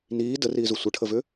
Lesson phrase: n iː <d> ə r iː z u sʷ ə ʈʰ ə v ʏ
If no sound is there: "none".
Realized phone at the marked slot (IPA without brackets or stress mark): d